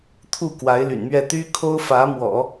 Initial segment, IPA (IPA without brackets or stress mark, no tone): t̪ʰ